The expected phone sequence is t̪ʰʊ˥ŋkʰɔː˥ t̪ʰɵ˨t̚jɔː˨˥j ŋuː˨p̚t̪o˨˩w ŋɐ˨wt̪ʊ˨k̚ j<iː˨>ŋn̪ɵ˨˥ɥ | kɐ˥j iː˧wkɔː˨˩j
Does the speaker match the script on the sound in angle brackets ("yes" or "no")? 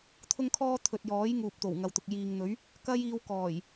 yes